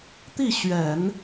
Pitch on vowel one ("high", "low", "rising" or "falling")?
falling